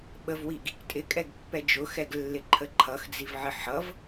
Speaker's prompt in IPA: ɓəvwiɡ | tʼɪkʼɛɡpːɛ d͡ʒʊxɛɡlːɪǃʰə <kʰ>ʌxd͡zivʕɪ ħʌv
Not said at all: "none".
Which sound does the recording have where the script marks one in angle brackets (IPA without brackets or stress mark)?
ǃʰ